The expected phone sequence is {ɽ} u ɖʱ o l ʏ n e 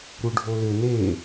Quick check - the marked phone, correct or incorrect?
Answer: incorrect